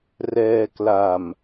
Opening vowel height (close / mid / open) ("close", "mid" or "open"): mid